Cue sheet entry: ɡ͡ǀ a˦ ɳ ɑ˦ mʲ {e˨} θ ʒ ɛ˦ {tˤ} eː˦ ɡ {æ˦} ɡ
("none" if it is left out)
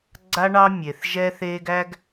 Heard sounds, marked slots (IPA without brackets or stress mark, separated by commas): e˨, θ, æ˦